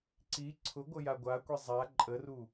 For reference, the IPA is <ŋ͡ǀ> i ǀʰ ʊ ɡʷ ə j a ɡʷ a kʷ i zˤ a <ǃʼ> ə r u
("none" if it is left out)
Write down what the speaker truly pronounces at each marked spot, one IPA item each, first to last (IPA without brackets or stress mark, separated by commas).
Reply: ǀ, ǃʼ